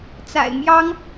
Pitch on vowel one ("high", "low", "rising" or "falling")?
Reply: low